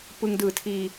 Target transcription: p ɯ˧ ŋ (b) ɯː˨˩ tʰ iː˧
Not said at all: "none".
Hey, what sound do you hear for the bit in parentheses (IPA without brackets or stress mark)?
d